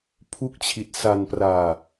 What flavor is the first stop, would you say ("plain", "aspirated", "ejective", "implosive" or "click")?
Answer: aspirated